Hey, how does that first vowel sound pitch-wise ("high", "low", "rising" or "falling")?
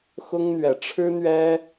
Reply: high